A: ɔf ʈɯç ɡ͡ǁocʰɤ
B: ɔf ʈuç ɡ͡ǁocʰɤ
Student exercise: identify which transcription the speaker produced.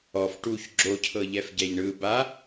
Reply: B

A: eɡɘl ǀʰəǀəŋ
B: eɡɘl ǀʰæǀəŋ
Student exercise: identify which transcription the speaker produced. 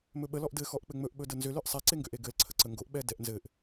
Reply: A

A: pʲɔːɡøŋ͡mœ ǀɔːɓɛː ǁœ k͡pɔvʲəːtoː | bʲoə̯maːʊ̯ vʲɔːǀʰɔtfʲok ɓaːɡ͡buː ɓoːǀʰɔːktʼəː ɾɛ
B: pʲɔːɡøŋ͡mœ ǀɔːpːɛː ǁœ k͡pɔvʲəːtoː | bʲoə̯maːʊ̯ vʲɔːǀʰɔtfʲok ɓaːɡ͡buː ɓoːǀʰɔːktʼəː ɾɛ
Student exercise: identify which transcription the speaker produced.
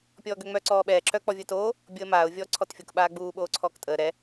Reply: A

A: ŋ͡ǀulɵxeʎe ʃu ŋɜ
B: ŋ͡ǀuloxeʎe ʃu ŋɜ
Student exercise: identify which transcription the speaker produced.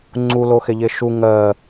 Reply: B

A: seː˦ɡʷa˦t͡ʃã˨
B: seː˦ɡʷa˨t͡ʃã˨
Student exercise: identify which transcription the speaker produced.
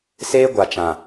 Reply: B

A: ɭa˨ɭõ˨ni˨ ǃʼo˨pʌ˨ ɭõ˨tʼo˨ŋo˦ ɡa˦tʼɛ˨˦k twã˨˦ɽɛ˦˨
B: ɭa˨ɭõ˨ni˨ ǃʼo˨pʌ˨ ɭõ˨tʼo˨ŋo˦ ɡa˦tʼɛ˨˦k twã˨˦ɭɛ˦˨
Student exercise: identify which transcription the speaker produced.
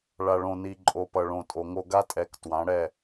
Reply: A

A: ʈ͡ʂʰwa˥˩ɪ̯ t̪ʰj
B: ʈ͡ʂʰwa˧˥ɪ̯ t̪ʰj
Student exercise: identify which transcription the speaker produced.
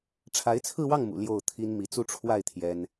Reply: A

